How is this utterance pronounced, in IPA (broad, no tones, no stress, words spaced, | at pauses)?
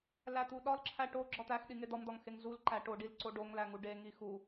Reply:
læt̪uɗɒlǁʰæ ʈoɡ͡ǁɒ t̪æx ɗiŋed̪ɒmd̪ɒŋ xeŋzulǃæ ʈoɖil ǀoɖoŋlæ ŋuɖeŋi xu